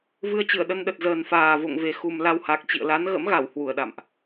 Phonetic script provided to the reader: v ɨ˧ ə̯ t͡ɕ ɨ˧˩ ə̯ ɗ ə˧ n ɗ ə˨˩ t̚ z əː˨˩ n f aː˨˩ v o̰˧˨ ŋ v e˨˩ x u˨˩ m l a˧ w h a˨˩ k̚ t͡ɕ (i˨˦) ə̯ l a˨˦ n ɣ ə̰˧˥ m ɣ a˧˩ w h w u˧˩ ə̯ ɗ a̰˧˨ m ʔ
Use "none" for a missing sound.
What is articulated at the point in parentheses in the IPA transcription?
ḭ˧˨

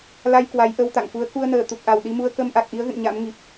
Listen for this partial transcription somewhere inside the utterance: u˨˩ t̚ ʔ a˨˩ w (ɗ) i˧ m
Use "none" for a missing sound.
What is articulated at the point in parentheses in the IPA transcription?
ɗ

